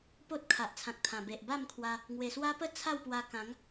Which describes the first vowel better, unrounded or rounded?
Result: rounded